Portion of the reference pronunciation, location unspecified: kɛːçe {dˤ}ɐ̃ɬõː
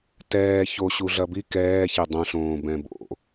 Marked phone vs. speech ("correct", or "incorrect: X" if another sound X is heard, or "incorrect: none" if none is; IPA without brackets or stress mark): correct